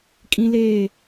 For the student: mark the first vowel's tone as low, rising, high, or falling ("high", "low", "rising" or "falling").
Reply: high